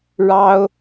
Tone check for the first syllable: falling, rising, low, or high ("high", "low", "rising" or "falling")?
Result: high